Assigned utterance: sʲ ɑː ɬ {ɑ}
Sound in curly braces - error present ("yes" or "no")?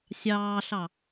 no